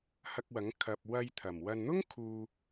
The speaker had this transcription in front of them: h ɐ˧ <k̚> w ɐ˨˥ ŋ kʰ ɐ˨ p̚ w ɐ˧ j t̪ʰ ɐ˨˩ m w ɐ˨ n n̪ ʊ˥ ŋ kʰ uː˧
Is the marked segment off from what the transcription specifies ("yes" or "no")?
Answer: no